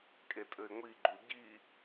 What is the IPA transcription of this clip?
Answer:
kʼetʼɘɪ̯ŋʷiɡ͡ǃu ɟi

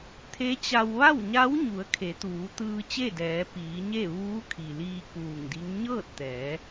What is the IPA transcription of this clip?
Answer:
t̪ʰe˧˥t͡ɕa˧w ʋa˥˨wɲa˧˥wɲu˩˧ə̯ kʰe˩˧t̪uː˩˧ t̪ɯː˧t͡ɕe˥˨dɛː˩˧ piː˩˧ɲe˥˨ ʋuː˧˥kʰi˩liː˧ kuː˧˩ŋdi˧˥ŋ ɲɤː˥˨t̚t̪ɛː˩˧

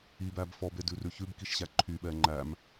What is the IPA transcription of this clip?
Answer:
ibæb fɔbedʉrʉ çʉbkiʃɕæ ǃʰyɓɛ ŋ͡ǃæm

